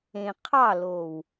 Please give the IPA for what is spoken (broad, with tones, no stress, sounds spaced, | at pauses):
ẽ˨ qʰ ɑ˦˨ l o˨ w